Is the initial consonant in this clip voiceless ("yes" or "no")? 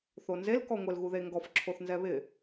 yes